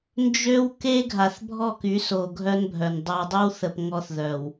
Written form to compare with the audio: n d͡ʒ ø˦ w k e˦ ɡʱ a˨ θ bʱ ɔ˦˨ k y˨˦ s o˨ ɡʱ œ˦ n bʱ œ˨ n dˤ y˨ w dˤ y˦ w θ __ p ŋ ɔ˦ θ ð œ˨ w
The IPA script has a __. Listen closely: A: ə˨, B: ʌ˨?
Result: A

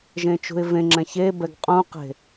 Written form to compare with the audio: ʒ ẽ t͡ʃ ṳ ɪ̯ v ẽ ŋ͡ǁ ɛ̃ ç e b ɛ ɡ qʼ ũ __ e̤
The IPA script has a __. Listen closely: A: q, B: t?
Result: A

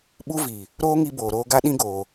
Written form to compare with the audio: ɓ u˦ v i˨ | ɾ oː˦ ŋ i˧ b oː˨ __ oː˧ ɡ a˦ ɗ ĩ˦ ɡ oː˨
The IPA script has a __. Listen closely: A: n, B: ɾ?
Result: B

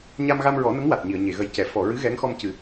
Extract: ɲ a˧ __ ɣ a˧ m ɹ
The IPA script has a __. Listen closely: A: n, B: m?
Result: B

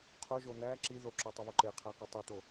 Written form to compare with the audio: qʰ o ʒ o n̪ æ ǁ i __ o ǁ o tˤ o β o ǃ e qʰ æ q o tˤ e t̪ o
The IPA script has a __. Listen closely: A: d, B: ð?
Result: B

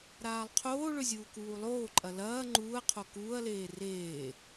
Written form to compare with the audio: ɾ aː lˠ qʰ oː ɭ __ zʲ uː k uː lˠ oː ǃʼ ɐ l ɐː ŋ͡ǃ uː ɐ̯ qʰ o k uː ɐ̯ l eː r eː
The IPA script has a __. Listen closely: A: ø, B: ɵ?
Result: B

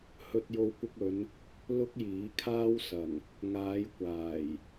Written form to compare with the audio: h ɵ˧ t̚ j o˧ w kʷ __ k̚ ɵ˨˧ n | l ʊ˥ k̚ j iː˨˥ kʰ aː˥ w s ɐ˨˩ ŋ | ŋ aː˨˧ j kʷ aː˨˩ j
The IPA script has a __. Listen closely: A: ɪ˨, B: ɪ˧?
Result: B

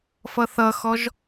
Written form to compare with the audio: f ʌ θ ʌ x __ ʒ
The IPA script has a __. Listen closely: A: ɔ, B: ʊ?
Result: A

